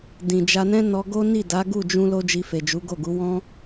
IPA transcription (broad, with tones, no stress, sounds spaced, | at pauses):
d ĩ˨ d͡ʒ a˧ n ɛ̃˦ n ɔ˧ ɡ o˦ n i˦˨ d a˨˦ ɡ u˦˨ d͡ʒ ũ˧ l o˦ d͡ʒ i˧ f e˨ d͡ʒ u˨˦ ɡ o˦˨ ɡ u˨˦ w ɔ̃˦